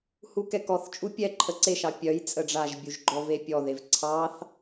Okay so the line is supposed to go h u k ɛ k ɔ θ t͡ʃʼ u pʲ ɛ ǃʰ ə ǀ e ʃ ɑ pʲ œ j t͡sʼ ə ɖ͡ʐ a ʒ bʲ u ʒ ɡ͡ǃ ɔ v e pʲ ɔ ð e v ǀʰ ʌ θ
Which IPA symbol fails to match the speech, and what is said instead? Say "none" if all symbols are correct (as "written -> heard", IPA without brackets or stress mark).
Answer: ʌ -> ɑ